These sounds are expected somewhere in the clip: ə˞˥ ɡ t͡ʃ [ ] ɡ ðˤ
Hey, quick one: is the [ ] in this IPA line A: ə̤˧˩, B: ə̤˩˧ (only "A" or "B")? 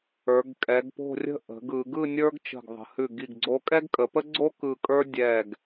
A